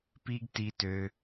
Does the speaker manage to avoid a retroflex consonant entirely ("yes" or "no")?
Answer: yes